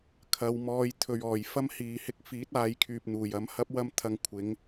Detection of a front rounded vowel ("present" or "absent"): present